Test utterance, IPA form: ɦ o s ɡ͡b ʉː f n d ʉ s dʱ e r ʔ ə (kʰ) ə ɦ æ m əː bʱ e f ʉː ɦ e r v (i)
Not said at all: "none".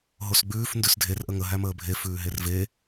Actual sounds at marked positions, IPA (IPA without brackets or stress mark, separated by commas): ŋ, e